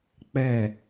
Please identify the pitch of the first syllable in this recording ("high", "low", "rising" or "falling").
falling